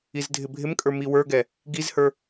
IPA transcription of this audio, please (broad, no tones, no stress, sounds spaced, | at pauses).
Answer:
i z dʱ ɪ bʱ ɪ m kʼ ə˞ m i w ə˞ ɡ ɛ | ɡ i z h ə˞